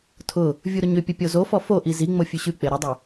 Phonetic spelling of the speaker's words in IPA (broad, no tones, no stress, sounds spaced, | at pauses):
tʰ ʊ | vʲ u ɾ ʊ ɲ ʏ pʲ ə pʲ o z o f ɔ f o ʔ i z i ŋ͡m o fʲ ʉ ɕ ʉ k͡p e ɾ ə dˤ ʏ